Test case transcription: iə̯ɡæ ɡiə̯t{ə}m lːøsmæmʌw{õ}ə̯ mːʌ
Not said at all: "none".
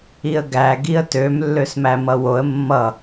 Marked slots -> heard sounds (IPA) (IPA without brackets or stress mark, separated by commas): ø, o